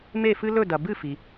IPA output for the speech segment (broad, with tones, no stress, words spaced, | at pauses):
me˦˨fɨ˦ lɵ˦˨dɐ˩bɨ˦˨ fi˩